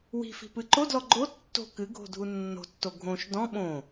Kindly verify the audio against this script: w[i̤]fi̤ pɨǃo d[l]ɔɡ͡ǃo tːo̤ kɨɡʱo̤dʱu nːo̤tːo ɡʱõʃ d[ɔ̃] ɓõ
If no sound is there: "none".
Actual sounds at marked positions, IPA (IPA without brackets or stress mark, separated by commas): i̤, l, ɔ̃